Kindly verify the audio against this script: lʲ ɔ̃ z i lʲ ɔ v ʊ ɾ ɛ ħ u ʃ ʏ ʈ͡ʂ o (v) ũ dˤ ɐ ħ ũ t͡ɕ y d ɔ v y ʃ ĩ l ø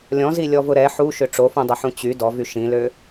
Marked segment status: incorrect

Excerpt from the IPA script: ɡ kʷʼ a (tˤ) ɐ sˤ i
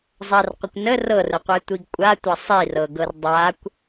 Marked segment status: incorrect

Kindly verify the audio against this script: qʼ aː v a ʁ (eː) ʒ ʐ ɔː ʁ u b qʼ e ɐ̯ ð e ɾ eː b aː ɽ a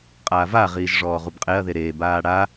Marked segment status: incorrect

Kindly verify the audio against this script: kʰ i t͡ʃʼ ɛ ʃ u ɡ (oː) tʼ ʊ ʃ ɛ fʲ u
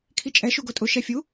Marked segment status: incorrect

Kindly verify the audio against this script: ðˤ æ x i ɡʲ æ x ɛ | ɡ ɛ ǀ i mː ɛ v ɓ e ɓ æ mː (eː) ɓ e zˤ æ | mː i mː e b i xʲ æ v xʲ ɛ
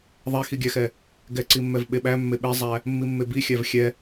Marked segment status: incorrect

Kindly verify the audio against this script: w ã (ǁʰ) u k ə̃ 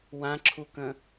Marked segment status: correct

